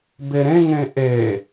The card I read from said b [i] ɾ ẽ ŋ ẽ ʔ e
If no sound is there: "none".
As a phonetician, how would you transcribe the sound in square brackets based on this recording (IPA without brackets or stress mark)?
e